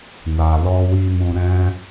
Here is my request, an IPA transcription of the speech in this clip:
n a˨ l ɔ˧ w i˧ m ũ˧ ɾ ɛ̃˦

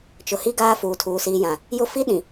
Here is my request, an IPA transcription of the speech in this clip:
t͡ʃ ʊ˨ h i˦ ɡ aː˦ f uː˨ tʰ uː˨ s iː˨ j ã˨ | j ʊ˦ f i˦ ɗ ĩ˨

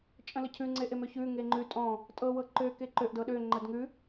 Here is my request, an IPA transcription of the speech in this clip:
t͡ʃʼ ə̃ l ə cʰ ʉ ŋ͡ǀ e ʔ e m ø ç ʉ ŋ e ŋ͡ǃ ʉ tʼ ɔ̃ | tʼ ɤ w ɤ ǃ ø k e ǃ ø ʔ d ɤ ɗ ø ŋ͡ǃ ə d ŋ ʉ

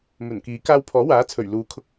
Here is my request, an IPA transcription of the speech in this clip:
m ɵ˨˩ n k iː˨˥ k aː˧ w pʰ ɔː˨˥ w aː˨˥ t͡sʰ ɵ˨˩ ɥ l uː˨˥ kʰ ʊ˧ k̚

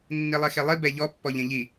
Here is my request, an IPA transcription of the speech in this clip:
nː i lˠ e x e lˠ i b ɛ ʎ ɔ pː ɔ ʎ ẽ ʎ i

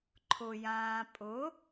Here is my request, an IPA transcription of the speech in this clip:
ǃʰ ʊ j ãː pʼ ʊ

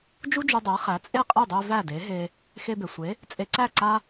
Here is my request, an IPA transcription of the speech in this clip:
d͡ʒ u˥ d͡ʒ u˧ dˤ ɛ˩˥ χ æ˩˥ t͡sʼ e˥˩ qʼ e˥˩ dˤ e˧ v æ˥˩ d e˩˥ ɦ e˧ | x e˧ b e˩ sʷ e˩˥ | t͡sʼ e˧ ǀ æ˥˩ ǀ a˥

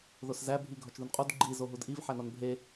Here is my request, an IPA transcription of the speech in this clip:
ð o s z æ bʱ i ɡʱ ɒ t͡ʃ ð u n qʼ u d ɡ͡ǃ i z o ɦ u d ʔ i v ħ æ n ɒ n bʱ e

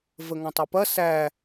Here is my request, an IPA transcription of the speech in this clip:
v ə ŋ ɔ̃ tˤ ɯ p ɐ s æ

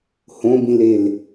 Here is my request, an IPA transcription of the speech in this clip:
h õ b ĩ l e l

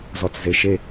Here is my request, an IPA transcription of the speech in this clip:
z ɔ t͡s z e ʃ e

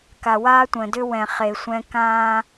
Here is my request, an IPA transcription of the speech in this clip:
k a˨ w aː˦ tʷ ə̃ː˨ d ʏ˦ w ɛ̃˨ χ e˨ sʷ ɛ̃˦ k ãː˦

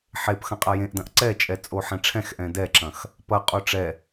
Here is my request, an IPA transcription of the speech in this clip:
ħ e p x ɐ̃ qʼ a j ẽ ʔ d ɐ̃ ʔ ǀ ɛ t͡ʃʼ ɛ t͡sʼ o ħ ɛ̃ ʈ͡ʂʰ ɛ̃ x ʔ ɛ̃ d ɛ ǁ ɐ̃ x | p ɐ qʼ o ʈ͡ʂ ɛ

